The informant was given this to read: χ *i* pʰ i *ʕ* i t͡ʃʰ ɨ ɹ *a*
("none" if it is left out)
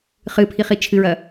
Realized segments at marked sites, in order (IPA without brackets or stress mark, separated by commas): ɨ, χ, ɐ